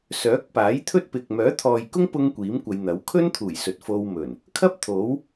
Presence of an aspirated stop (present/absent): present